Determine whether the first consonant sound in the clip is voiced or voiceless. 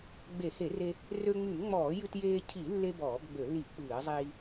voiced